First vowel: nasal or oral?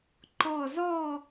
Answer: oral